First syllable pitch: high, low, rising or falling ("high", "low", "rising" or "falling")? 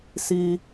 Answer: high